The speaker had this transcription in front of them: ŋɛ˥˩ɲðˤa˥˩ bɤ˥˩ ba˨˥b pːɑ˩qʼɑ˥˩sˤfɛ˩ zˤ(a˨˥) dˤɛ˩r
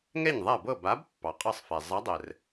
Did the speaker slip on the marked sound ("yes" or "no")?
no